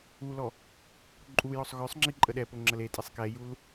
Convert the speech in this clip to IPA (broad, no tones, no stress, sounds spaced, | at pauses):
u l ɔ | ǃʼ u j ɔ sˤ ɣ œ sˤ ŋ͡ǁ i ǃʼ ə ɗ ɛ p o ŋ͡ǁ ə l e tʼ e sˤ k ɛ j u l